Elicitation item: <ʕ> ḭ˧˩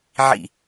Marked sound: correct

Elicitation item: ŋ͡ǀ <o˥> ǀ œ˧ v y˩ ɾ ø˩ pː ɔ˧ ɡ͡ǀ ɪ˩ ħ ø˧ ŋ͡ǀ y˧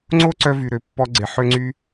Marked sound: correct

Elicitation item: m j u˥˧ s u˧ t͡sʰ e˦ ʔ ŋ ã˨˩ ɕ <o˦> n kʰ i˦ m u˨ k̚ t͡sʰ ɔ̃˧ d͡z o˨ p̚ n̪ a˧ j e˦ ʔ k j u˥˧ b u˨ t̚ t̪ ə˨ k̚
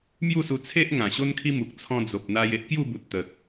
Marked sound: correct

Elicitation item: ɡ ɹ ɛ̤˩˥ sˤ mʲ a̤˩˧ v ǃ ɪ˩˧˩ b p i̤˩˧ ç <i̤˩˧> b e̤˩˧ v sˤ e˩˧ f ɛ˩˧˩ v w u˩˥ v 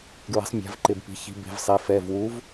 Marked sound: correct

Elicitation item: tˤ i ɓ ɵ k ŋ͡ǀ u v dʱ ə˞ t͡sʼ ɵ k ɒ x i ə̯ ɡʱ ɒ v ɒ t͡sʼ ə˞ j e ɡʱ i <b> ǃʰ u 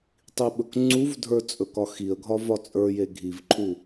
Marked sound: incorrect: v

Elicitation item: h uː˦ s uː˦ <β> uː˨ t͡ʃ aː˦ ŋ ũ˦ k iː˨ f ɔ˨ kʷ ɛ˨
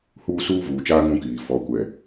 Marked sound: incorrect: v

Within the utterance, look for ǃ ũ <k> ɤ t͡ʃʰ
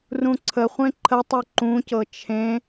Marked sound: incorrect: c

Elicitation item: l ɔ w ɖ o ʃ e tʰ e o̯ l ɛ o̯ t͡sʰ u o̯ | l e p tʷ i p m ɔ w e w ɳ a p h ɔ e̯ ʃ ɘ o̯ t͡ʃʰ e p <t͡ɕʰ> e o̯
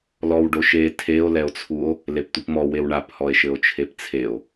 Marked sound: incorrect: t͡sʰ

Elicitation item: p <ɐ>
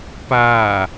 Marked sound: incorrect: a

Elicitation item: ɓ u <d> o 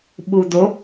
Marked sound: correct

